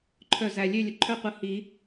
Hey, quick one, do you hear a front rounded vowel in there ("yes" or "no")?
yes